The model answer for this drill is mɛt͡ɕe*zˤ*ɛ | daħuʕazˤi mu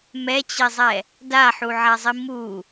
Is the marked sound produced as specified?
yes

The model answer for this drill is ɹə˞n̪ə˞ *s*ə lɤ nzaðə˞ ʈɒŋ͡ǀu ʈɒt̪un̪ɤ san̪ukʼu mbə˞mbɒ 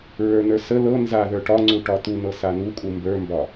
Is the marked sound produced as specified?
yes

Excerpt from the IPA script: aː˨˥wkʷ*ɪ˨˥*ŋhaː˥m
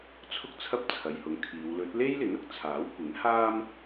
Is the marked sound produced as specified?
yes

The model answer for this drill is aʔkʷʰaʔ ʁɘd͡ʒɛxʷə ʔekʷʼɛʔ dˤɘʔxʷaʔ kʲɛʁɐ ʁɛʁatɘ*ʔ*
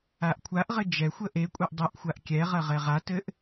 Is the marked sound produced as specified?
yes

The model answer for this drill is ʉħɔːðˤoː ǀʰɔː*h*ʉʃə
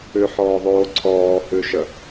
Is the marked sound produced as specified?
yes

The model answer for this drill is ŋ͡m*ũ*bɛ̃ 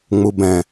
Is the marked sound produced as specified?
no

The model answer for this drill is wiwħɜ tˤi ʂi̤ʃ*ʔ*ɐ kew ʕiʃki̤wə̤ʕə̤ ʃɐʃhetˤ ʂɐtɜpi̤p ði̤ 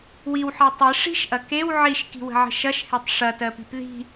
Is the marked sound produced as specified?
yes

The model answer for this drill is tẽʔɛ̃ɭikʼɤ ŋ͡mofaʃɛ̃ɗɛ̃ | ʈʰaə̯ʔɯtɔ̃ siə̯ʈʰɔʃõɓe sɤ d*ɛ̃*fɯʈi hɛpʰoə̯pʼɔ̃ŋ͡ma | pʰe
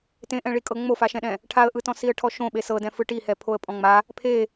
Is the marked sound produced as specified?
yes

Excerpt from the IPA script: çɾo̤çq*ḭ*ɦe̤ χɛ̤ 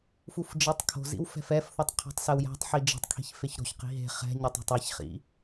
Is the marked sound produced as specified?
no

